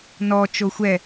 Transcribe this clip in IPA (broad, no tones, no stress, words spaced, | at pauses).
nɔt͡ʃo xʷɛ